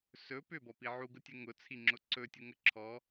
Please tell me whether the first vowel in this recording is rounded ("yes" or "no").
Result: yes